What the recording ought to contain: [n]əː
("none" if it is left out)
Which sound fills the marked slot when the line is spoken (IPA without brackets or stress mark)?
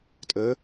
tʼ